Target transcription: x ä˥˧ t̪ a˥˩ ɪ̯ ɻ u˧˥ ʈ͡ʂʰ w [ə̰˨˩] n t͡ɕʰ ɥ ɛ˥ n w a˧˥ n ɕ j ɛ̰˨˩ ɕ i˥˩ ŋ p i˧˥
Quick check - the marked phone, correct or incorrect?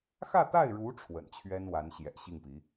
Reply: correct